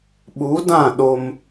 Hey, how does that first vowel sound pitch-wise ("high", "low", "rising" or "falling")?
rising